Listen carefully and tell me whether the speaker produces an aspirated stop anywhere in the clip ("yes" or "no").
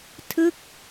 yes